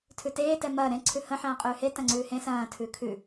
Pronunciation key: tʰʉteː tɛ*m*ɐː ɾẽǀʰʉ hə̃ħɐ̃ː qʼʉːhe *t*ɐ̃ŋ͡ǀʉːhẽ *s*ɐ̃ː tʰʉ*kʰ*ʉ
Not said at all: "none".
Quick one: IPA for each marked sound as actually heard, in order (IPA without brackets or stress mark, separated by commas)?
m, t, s, kʰ